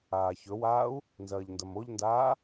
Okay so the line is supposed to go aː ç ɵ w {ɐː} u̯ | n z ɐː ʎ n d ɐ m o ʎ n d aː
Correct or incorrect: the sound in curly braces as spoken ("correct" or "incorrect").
incorrect